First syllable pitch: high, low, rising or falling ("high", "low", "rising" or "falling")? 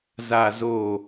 low